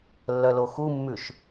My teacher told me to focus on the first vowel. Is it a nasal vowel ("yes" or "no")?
no